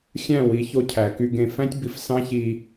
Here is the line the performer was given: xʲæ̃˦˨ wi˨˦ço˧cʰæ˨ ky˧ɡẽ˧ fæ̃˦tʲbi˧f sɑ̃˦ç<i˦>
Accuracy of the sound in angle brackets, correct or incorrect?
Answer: incorrect